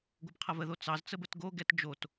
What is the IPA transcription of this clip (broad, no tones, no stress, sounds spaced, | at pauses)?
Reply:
ɡʷ ʌ b qʰ ɐ v ə ð o t͡s ɑ z t͡s ə b ə t ɡ o ɡ ɛ t d͡ʒ o t